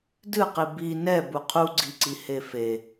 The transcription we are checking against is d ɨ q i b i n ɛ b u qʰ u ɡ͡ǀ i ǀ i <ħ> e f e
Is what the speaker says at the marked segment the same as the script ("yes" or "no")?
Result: no